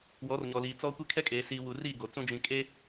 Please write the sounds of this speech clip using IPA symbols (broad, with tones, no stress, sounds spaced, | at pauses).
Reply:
w ɔ˨˦ r ɲ ɔ˨ l iː˨ t͡s ɔ˦ kʷ e˦ kʰ ɛ˦ kʼ eː˨ s iː˨ w u˨ r iː˦˨ ɡ o˨ t͡s ũ˦ d͡ʒ ĩ˨ kʼ e˦